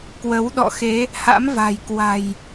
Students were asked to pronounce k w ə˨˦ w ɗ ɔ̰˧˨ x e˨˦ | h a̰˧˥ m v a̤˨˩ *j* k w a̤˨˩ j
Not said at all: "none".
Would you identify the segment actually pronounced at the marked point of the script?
j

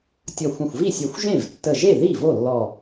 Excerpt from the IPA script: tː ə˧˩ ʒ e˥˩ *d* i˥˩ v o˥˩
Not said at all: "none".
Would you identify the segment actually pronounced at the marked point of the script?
ð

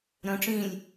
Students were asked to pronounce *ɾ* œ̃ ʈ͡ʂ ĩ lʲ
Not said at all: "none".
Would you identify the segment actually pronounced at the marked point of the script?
ɾ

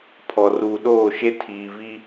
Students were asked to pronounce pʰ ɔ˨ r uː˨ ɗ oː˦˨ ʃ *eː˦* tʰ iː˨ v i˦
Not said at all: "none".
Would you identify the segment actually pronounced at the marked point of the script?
e˦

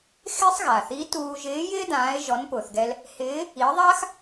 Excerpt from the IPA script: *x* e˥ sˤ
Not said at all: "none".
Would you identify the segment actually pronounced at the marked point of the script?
x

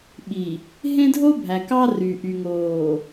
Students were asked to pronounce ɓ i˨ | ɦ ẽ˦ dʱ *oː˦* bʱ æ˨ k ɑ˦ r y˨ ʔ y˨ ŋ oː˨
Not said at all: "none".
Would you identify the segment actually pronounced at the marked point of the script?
o˦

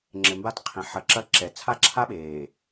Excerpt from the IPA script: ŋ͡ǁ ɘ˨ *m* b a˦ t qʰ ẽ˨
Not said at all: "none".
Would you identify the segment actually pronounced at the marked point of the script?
m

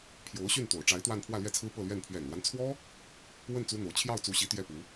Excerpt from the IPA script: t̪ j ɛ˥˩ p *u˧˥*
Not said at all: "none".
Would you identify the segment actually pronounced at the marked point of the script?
u˧˥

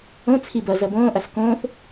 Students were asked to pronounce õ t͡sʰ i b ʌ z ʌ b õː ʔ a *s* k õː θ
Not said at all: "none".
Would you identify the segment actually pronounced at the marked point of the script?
s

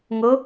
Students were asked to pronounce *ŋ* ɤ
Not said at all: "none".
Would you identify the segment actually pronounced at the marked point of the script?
ŋ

